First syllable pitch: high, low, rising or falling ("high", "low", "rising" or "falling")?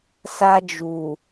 high